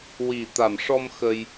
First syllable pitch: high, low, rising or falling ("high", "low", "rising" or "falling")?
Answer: low